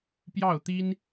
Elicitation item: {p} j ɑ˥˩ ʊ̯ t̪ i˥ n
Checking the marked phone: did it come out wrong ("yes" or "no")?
no